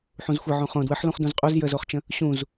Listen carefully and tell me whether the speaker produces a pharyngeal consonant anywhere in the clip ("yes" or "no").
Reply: yes